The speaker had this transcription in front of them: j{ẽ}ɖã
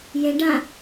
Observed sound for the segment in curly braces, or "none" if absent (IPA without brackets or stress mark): ẽ